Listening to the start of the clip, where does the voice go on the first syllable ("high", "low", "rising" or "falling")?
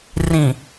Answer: low